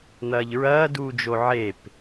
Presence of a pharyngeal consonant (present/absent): present